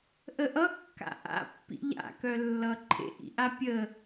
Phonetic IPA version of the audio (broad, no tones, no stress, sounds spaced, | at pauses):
ʔ ə ʔ ʌ kː a̰ ʔ a̰ pː ḭ ʎ a̰ k œ lː ʌ ǃʰ ḛ ʔ ḭ ʔ a pʲ ə